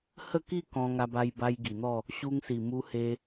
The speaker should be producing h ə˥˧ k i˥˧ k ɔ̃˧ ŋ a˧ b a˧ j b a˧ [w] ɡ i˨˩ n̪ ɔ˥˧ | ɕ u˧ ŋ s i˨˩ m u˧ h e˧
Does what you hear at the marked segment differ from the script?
yes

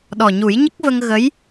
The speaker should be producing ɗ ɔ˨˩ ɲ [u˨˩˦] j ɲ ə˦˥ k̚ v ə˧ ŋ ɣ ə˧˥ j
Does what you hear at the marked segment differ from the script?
no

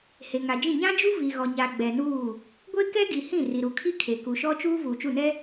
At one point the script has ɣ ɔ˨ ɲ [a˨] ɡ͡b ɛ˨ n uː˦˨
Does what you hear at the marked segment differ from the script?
no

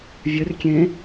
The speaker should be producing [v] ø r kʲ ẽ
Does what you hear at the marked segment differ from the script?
yes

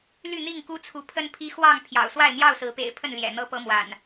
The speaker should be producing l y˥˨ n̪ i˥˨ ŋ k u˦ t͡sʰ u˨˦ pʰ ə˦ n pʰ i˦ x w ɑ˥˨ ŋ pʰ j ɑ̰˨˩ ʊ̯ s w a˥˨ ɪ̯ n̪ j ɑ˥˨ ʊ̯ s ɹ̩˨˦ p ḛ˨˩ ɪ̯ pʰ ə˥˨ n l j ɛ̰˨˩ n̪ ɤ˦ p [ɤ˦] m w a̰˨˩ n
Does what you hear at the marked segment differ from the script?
no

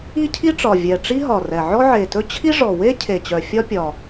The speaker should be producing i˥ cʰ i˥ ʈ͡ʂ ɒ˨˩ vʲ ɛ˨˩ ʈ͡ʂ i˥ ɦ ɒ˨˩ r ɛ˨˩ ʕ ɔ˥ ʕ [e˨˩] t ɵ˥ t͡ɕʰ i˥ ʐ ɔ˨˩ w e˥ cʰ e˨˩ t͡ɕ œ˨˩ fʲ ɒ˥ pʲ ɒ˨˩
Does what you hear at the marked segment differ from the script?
no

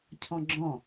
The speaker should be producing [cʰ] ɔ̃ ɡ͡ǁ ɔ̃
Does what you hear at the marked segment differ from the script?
no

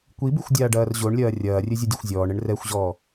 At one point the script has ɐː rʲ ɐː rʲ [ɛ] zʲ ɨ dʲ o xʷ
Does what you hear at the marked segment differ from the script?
yes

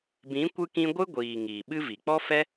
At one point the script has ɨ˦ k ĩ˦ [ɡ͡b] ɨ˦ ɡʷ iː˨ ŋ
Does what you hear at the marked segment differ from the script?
yes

